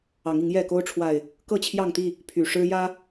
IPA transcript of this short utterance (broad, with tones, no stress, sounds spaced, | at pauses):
ɑ˨˦ ŋ i˨˦ ŋ j ɛ˥˨ k o˦ ʊ̯ ʈ͡ʂʰ w a˨˩ ɪ̯ | k ɤ˥˨ t͡ɕʰ j ɑ˥˨ ŋ t̪ i˥˨ | pʰ y˨˩ ʂ ɻ̩˦ j ä˦